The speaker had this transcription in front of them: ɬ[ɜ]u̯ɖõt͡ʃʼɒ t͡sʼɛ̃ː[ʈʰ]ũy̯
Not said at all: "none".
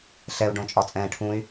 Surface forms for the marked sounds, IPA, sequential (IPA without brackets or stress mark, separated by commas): ɛ, ʈʰ